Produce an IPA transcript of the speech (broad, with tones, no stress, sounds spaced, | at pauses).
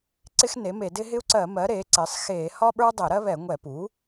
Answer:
ǀ ɪ˦ x n e˩˥ m e˧˩˧ d ɪː˦ ɦ ɪ˦ u̯ ǀ ɜ˧˩˧ m ɜ˩˥ ɾ eː˩˥ ǀ ɪː˩˥ sˤ x eː˧˩˧ h ɒ˦ ɓ ə˞˦ dˤ ɪː˧˩˧ ɾ ɜ˦ β ɛ˧˩˧ ŋʷ ɛ˧˩˧ p u˩˥